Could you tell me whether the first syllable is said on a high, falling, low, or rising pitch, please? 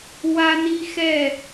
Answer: high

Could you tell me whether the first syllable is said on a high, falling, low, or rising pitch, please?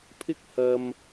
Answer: high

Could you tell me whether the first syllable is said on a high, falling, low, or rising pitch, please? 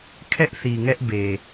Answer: high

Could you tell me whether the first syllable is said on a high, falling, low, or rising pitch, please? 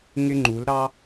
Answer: high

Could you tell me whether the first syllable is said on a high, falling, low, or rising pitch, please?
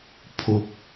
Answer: low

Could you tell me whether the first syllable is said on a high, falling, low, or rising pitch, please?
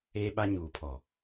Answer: high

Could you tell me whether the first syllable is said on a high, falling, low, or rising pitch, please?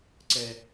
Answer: low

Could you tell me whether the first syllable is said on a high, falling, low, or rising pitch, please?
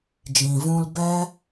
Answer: low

